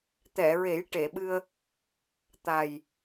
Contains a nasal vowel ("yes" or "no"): no